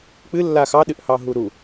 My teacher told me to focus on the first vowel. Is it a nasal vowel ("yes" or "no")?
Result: no